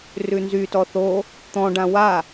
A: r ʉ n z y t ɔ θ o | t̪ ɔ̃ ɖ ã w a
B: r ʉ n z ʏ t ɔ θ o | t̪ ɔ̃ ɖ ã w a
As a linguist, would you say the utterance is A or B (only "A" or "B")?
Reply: A